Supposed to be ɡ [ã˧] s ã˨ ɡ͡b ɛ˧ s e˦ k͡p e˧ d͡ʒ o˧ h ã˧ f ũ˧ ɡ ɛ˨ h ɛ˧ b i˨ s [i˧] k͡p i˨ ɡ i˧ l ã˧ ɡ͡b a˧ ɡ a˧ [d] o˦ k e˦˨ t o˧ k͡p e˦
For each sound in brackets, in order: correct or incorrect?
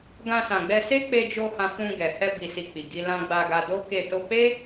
correct, incorrect: i˨, correct

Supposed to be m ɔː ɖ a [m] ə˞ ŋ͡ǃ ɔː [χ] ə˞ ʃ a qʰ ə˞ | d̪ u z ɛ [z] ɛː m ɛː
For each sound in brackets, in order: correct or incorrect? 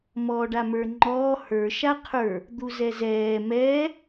correct, incorrect: h, correct

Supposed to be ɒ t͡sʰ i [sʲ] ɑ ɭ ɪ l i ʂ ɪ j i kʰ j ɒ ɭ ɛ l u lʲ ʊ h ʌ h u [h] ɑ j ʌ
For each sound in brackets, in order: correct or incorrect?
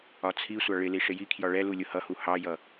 incorrect: sʷ, correct

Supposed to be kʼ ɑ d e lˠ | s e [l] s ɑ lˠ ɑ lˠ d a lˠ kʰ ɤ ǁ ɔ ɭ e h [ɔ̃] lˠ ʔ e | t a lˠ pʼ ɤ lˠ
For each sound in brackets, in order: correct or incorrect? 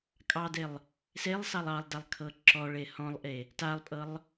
incorrect: lˠ, correct

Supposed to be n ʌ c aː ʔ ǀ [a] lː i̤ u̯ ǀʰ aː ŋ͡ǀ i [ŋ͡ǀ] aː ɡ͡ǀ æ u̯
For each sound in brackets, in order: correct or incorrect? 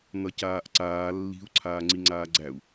incorrect: aː, correct

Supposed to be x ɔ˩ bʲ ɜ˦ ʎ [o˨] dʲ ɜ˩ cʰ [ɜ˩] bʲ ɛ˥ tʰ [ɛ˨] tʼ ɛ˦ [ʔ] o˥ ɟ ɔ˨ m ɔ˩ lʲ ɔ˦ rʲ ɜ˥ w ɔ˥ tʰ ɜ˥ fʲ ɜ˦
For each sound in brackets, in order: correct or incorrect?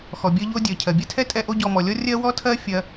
incorrect: o˥, correct, incorrect: ɛ˥, correct

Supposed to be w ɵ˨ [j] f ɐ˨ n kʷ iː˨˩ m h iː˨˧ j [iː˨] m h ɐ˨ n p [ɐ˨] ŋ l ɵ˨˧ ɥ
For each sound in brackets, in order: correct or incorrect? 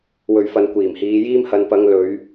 incorrect: ɥ, incorrect: iː˥, incorrect: ɐ˨˧

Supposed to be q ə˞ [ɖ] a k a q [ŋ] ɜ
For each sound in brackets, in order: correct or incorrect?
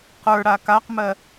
incorrect: ɽ, incorrect: m

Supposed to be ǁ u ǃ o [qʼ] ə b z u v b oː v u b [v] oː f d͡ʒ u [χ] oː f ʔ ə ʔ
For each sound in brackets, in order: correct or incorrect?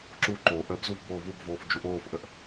incorrect: ʔ, correct, incorrect: ʔ

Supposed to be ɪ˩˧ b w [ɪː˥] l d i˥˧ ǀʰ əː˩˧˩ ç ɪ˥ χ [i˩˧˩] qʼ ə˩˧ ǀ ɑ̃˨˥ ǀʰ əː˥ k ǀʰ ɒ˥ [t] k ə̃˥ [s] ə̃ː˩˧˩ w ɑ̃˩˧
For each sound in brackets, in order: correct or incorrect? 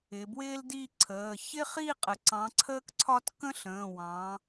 correct, incorrect: i˥˧, correct, incorrect: ɬ

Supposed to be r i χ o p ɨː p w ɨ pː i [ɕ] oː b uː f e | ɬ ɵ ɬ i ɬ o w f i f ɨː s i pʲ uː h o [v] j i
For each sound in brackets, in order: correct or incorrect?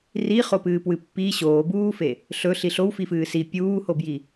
correct, incorrect: b

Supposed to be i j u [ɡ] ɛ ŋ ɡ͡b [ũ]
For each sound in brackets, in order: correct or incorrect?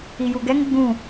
correct, correct

